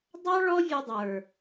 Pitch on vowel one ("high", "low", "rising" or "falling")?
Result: high